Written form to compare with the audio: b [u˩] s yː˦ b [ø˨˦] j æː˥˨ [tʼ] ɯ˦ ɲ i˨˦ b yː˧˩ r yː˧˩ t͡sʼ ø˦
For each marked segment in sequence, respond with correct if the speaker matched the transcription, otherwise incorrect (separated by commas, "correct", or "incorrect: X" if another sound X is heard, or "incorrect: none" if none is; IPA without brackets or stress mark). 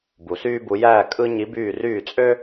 correct, incorrect: u˨˦, incorrect: kʼ